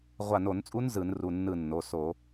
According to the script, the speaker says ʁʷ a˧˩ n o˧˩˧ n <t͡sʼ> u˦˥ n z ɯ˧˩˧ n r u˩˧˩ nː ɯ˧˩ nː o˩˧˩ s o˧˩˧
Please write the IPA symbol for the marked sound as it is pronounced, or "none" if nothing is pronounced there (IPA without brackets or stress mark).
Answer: t͡sʼ